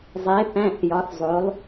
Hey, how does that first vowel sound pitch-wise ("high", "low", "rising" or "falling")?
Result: rising